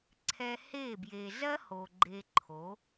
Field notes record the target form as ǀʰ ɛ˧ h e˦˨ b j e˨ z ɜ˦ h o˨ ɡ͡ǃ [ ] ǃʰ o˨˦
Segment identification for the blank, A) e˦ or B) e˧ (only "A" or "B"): B